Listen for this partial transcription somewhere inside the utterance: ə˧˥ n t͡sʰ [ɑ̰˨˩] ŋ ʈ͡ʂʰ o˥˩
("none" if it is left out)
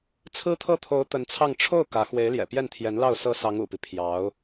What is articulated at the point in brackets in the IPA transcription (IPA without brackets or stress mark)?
ɑ˥˧